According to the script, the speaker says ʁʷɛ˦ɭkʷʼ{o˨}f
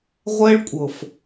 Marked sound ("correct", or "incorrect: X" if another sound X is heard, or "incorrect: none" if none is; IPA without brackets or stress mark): incorrect: ɤ˨